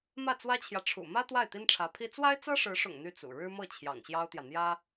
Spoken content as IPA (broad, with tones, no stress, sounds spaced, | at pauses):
m ä˥˩ t͡s w ä˥ t͡ɕʰ j ä˨ ʈ͡ʂʰ ṵ˨˩ m ä˥ t̪ w a˥˩ ɪ̯ t̪ i˥ n ʈ͡ʂʰ ä˧˥ pʰ i˥ t͡s w a˥ ɪ̯ t͡s ɤ˥ ʂ ɻ̩˧˥ ʂ ʊ̰˨˩ ŋ n̪ y˥˩ t͡s ṵ˨˩ ɻ ɻ̩˥ m ɤ˥˩ t͡ɕʰ j ɑ̰˨˩ ŋ ɕ j ɑ˥ ʊ̯ t̪ j ä˨ n̪ j ä˥